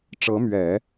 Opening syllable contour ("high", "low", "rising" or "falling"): rising